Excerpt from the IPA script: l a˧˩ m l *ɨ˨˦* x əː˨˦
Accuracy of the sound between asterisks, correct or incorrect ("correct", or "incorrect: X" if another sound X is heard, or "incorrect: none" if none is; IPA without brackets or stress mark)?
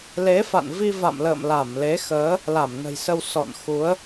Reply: incorrect: e˨˦